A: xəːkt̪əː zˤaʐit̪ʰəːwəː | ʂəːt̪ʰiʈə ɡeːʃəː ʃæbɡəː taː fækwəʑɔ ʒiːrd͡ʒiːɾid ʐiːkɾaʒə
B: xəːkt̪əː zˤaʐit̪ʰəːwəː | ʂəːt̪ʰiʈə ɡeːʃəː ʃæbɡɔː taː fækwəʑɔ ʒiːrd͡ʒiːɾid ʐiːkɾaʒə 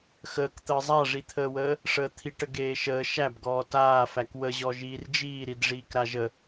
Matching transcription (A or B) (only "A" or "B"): B